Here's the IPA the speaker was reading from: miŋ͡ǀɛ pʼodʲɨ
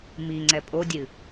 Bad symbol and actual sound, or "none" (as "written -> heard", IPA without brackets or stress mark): none